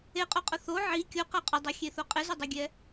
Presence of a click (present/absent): absent